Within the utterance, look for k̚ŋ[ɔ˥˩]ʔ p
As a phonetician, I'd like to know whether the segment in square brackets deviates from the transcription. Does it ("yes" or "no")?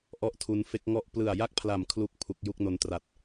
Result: no